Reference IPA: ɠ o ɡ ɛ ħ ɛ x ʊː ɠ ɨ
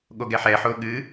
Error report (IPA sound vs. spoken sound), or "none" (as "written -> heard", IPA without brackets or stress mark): x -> ħ